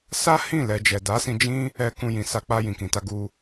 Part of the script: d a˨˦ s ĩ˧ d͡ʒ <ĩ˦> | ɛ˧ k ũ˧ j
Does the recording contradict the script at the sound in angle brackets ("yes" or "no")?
no